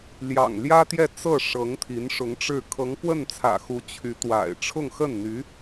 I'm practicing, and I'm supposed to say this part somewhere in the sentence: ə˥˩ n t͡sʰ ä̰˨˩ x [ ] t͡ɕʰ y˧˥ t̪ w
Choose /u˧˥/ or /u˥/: u˧˥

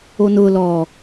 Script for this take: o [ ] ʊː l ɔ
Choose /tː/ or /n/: n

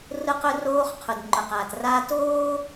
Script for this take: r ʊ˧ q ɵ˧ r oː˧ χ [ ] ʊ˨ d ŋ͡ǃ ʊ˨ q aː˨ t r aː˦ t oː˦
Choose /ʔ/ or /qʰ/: qʰ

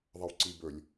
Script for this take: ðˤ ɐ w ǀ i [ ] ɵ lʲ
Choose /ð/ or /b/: b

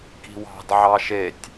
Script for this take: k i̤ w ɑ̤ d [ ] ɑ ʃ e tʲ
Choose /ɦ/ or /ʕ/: ʕ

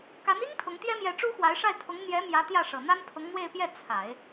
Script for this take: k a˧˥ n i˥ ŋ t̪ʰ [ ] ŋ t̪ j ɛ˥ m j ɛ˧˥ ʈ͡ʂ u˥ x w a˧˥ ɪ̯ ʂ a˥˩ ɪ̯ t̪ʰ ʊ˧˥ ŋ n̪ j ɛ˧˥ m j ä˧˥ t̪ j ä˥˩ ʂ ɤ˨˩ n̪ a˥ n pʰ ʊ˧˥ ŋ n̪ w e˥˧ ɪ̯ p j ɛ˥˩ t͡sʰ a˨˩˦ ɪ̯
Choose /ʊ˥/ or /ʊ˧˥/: ʊ˧˥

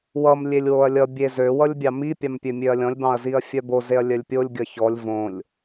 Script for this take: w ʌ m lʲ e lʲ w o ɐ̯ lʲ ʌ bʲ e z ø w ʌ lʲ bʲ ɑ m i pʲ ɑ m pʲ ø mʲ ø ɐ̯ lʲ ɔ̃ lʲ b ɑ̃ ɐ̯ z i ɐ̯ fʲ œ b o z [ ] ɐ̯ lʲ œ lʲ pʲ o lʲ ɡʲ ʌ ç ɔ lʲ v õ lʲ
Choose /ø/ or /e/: e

